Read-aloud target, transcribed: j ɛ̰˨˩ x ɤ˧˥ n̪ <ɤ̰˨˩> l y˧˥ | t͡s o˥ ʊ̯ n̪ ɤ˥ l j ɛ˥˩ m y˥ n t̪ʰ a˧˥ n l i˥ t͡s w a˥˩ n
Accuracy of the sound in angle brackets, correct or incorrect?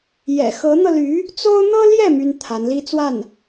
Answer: incorrect: ɤ˧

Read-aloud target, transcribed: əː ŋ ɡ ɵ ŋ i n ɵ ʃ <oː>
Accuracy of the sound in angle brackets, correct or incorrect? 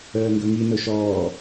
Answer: incorrect: ɔː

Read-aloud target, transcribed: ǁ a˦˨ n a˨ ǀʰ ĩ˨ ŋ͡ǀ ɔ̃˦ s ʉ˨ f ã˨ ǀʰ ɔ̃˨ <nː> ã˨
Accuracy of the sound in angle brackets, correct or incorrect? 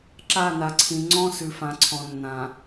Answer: correct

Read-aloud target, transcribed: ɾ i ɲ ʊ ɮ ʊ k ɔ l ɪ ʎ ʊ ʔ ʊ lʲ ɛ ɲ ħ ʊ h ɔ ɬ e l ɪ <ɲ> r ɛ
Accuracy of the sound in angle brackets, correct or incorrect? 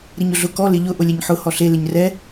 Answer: correct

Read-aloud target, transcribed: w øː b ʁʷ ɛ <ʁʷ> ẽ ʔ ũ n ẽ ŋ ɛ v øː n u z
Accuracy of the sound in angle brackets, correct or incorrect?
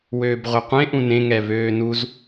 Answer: incorrect: qʷ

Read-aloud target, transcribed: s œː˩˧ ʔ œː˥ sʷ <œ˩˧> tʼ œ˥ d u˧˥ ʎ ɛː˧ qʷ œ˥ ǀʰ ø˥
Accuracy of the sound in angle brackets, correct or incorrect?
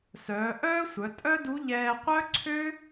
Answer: correct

